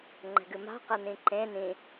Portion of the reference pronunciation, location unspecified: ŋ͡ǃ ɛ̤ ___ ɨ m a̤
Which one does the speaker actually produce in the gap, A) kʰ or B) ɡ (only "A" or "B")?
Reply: B